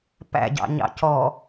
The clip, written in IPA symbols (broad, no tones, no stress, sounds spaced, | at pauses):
p æ̰ ɟ ɑ̰ ɲ ɑ̰ c ɔ